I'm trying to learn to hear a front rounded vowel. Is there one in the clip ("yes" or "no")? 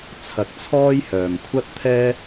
yes